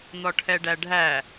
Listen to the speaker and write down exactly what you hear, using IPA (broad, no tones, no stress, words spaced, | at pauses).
n̪ɔʈʰɛɖæɖʱæ